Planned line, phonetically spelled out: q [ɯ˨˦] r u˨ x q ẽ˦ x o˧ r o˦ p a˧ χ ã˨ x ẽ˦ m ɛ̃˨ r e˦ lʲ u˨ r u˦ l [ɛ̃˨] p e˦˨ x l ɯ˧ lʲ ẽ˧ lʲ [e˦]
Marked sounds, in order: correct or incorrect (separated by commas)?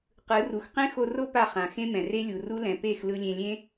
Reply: correct, correct, incorrect